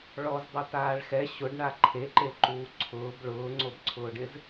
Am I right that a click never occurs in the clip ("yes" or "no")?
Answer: no